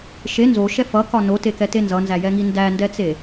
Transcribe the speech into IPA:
ʃe nzoʃɛ fʌkɒ notekɛte nzʌnzæjɛŋi ndændɛt͡se

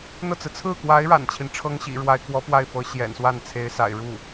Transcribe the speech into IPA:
n̪ɤ˥˩t͡sɹ̩˩ t͡sʰɹ̩˥˩kwa˧˥ɪ̯ ɻa̰˨˩nt͡ɕʰi˦n ʈ͡ʂʰɤ˥ŋɕḭ˨˩ɻwa˧˥ɪ̯ kwɔ˧˥ pwa˥˩ɪ̯fɤ˧˥ ɕjɛ̰˨˩nswa˥˩n t͡sʰe˧˥ɪ̯sa̰˨˩ɪ̯ ɻu˥˩

